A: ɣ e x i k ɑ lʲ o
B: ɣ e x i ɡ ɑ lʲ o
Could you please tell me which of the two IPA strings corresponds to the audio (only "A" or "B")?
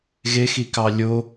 A